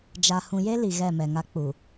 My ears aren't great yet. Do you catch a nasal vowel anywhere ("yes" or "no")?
yes